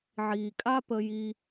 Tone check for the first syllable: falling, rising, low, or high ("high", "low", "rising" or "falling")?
low